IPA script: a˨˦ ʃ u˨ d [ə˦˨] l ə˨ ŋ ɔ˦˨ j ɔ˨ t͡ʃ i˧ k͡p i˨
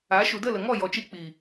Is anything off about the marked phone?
no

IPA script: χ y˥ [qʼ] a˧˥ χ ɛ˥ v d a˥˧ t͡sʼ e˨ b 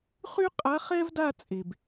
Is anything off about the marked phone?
no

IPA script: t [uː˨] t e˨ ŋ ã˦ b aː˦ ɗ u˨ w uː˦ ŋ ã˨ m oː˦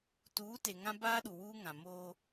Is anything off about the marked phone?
yes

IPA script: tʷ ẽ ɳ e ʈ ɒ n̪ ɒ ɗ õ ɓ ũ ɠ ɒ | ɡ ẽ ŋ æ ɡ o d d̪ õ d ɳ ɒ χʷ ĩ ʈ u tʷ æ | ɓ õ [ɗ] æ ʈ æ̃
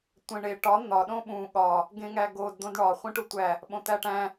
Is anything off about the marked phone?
yes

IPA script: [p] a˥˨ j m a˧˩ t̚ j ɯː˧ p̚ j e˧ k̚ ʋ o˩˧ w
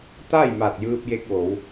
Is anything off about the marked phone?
yes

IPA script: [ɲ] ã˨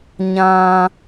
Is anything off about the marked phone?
no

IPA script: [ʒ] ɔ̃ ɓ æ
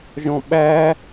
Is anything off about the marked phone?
no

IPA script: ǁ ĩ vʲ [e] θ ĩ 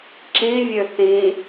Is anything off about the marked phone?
yes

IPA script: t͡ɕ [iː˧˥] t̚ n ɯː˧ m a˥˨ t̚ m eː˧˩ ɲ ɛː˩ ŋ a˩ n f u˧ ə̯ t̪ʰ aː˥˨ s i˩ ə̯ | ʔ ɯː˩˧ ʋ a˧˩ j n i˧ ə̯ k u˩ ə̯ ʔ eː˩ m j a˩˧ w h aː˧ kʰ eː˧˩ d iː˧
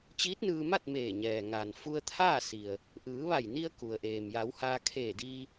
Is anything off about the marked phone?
no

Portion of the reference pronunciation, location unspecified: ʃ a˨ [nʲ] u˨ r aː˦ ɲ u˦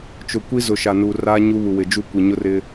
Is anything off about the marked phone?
yes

